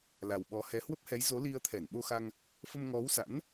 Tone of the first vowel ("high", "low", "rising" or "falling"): low